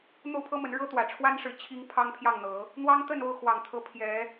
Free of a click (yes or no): yes